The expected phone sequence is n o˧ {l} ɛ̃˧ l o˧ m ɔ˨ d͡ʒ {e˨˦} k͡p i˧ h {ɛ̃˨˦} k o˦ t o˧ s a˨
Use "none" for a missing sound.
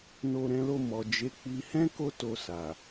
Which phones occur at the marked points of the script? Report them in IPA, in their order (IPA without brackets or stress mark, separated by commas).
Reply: ɾ, e˨˦, ɛ̃˦